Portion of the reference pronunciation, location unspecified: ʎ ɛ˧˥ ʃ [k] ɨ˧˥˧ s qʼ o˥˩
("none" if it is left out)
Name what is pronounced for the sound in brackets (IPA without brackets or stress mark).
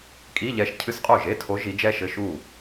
cʰ